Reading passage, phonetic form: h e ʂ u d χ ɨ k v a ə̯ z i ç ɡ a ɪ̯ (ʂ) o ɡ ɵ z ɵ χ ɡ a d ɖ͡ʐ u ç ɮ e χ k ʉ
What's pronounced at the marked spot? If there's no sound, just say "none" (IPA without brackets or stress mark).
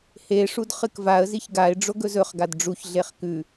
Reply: ɖ͡ʐ